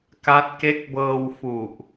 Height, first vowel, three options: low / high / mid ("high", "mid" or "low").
low